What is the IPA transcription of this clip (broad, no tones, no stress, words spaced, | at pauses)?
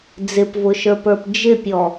d͡zɪpvʊʃə˞pə˞p d͡ʒɪpʲɔ